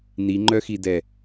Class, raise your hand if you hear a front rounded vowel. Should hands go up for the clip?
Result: yes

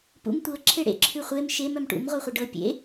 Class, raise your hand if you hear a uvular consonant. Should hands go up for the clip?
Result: yes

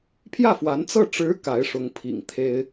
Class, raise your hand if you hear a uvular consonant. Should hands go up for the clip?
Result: no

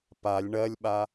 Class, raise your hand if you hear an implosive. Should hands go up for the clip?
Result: yes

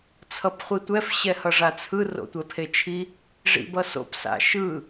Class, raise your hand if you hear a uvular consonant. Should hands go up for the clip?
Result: yes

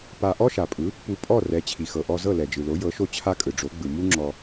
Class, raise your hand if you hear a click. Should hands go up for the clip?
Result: yes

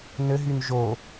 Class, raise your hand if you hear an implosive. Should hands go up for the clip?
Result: no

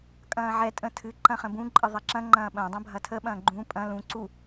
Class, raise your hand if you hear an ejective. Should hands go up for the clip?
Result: yes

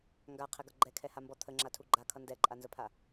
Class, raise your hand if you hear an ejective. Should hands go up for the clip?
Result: yes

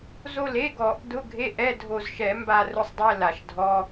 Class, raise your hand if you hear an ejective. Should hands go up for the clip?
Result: no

